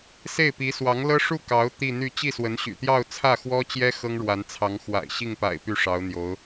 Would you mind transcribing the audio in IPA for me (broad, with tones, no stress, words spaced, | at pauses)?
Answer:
se˥˩ɪ̯pi˧˥ swɑ˧˥ŋlɤ˥ ʂu˥˩ kɑ˧˥ʊ̯ t̪i˥˧n̪y˥˧ t͡ɕi˥˩swə˧˥nɕy̰˨˩t̪jɑ˥˧ʊ̯ t͡sʰä˥˩xwɔ˥t͡ɕjɛ˥ xɤ˥ŋɻwa˧˥nt͡sʰɑ˧˥ŋxwa̰˨˩ɪ̯ ɕi˥˩ŋpa̰˨˩ɪ̯ py˥˩ʂɑ˧˥ʊ̯ n̪jo˧˥ʊ̯